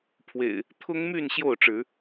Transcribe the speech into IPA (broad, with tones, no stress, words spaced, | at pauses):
pʰwḛ˨˩ɪ̯ | t̪ʰʊ˦ŋmy˥˨n ɕjo˥˨ʊ̯ʈ͡ʂɻ̩˨˦